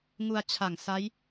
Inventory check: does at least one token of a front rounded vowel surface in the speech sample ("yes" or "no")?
no